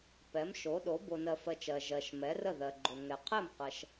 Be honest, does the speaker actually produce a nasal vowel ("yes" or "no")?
no